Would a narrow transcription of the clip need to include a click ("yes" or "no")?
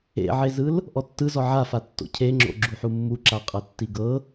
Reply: yes